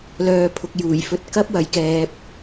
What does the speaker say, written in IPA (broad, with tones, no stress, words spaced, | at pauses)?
lœː˨ pʰʊ˨k̚juː˨˩jfɵ˧t̚ kɐ˥p̚wɐ˨˧jkɛː˨p̚